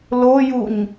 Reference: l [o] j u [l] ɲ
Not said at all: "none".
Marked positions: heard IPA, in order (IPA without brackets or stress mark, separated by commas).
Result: o, none